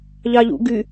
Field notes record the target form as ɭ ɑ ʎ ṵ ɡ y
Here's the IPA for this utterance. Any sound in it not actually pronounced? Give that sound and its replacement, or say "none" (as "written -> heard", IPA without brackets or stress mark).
ɭ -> ʎ